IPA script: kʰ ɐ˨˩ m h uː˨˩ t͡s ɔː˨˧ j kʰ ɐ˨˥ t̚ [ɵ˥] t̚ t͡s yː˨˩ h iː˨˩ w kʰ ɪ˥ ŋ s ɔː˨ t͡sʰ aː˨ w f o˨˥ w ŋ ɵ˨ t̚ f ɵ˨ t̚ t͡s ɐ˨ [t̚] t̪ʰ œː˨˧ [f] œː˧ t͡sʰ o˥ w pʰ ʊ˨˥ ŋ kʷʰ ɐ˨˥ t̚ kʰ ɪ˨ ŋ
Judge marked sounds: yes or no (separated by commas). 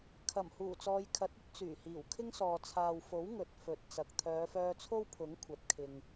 yes, no, yes